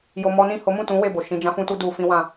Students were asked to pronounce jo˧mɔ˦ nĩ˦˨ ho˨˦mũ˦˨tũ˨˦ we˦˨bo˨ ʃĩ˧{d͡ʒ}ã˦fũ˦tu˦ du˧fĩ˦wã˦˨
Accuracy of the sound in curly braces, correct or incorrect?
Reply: correct